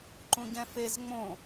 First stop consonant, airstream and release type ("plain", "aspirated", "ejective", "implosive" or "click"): click